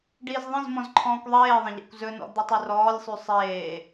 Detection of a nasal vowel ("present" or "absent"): present